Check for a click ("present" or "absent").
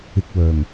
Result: absent